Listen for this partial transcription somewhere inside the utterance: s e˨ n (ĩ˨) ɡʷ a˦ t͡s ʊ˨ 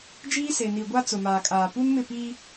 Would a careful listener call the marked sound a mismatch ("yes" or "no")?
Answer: yes